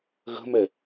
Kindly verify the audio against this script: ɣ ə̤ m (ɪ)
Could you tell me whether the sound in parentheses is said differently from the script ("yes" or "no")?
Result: yes